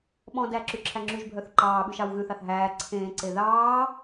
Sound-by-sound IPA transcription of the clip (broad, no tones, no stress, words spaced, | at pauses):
ɓɔ̃dæ ǁyǁʰæŋ͡ǁyʒbʱœθ ǃɑːɓʉ ʃɑwɣʉθɑθ ɦæː ǀʰẽːǀe ðɑː